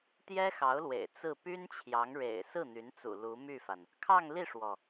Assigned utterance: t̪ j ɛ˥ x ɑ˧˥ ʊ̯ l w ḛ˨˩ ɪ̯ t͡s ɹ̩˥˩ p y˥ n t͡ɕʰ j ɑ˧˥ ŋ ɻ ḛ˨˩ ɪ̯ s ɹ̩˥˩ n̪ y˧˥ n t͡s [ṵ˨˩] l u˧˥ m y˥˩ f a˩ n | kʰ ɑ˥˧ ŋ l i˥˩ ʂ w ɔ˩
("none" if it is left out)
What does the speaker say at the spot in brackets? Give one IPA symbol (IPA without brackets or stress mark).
ṵ˨˩